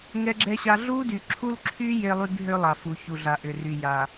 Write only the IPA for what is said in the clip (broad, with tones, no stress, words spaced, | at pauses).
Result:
ŋɛ˦ɡ͡ǁɛ˦ɕa˦ ɮu˦dy˨ǁʰu˦lǁʰy˦ je˦lˠy˦bɦʏ˦ lˠa˨fu˨ çu˨ɮa˨ ʔʏ˨ry˨ja˨